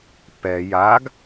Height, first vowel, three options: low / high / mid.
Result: mid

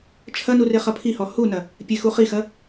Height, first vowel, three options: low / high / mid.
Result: low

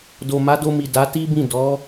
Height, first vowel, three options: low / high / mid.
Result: mid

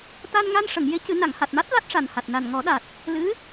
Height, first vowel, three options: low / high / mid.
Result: low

